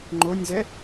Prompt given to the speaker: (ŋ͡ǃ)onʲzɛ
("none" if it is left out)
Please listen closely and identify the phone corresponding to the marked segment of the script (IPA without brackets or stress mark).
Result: ŋ͡ǃ